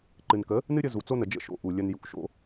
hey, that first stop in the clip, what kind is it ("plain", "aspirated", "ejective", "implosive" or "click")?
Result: click